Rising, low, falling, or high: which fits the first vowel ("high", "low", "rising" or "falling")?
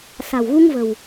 low